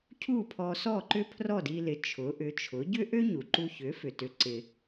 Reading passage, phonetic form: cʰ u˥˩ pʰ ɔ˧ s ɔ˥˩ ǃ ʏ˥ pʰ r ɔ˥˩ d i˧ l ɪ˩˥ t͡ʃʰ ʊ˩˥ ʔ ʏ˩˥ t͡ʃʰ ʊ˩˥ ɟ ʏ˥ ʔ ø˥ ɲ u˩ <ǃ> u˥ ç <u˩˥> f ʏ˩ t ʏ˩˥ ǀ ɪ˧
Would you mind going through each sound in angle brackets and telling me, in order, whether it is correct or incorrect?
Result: correct, incorrect: ʏ˩˥

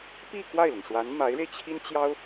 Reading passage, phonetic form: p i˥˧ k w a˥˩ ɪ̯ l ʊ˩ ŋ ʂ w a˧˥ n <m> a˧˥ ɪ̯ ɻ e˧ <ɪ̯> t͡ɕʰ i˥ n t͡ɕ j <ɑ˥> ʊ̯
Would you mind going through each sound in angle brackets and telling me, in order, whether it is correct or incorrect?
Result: correct, correct, correct

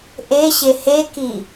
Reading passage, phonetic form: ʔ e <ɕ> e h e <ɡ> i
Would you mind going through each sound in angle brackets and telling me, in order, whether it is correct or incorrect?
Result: correct, incorrect: k

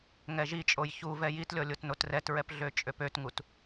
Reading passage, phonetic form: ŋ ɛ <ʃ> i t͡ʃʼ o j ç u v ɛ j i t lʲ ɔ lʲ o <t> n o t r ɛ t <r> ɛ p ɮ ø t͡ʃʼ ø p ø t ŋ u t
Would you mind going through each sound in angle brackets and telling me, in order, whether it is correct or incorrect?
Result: incorrect: ʒ, correct, incorrect: ɹ

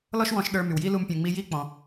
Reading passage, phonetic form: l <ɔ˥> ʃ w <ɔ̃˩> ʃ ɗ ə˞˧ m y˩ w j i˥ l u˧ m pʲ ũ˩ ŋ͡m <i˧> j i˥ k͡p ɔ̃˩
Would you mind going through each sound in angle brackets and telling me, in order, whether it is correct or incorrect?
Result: correct, incorrect: ɔ̃˧, correct

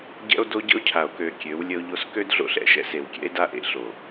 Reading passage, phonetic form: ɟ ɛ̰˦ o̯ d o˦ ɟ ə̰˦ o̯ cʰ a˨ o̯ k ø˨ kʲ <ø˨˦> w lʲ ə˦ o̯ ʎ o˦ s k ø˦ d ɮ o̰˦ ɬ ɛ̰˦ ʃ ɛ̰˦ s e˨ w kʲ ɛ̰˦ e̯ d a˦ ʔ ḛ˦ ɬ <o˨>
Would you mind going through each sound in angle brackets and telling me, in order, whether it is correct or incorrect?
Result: correct, correct

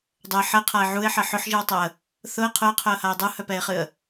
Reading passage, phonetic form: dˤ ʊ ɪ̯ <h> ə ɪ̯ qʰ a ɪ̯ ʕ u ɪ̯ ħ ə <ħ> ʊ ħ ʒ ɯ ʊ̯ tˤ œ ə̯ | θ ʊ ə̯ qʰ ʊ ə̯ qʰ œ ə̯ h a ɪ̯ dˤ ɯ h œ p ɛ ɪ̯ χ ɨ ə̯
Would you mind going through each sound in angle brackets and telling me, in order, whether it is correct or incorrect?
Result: incorrect: ħ, correct

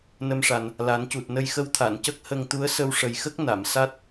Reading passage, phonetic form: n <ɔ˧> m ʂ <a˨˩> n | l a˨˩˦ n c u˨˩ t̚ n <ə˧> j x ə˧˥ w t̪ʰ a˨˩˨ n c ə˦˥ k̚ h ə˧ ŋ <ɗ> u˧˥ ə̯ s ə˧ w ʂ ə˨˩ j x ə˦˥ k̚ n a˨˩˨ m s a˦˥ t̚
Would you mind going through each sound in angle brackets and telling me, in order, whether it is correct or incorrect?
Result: incorrect: ə˧, correct, correct, incorrect: t̪

